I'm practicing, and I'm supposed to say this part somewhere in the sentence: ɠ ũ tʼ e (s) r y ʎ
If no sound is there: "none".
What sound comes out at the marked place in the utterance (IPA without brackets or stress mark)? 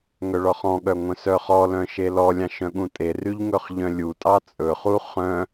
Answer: none